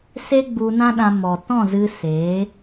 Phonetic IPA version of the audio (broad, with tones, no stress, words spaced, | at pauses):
se˦ɡ͡bu˧nã˦ɗã˧ mɔ˨ tɔ̃˦˨zɨ˧ se˨˦